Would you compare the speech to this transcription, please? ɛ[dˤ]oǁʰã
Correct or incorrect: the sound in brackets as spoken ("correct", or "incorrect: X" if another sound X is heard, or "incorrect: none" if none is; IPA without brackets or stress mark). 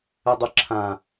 correct